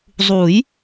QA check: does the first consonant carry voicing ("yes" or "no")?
yes